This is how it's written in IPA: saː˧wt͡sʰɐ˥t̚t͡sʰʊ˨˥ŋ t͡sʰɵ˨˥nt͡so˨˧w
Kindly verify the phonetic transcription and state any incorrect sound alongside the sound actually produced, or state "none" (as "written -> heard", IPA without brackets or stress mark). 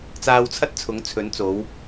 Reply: s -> t͡s